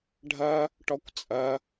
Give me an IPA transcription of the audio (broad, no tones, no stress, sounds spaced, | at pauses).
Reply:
ɖʱ ɐ | ʈ ɔ kʷ t͡sʼ ɐ